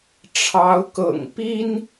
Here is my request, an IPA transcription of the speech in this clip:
ʈ͡ʂʰ ɑ˨˦ ʊ̯ k ɤ̰˨˩ ŋ p i˦ n

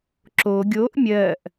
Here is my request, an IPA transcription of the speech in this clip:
ǁ o ɡʲ o ʔ mʲ ɜ ʔ

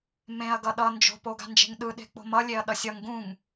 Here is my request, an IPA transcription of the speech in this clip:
m ẽ ɐ̯ ɡ ʌ ɗ ʌ n d͡ʒ o̤ p o ɡ a̤ n d͡ʒ e̤ ŋ ɗ ɯ ɗ e̤ k͡p o̤ m ʌ lʲ e ɐ̯ ɗ ʌ sʲ ʌ ŋ ɡ ũ ŋ

